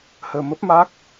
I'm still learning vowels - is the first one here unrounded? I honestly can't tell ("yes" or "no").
yes